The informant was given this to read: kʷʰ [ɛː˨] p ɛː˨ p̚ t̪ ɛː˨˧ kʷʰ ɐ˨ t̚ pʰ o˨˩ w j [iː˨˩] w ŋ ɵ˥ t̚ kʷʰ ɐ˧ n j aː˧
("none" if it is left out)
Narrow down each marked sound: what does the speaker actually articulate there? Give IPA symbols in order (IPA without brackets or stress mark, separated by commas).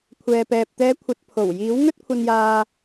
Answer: ɛː˨, iː˨˥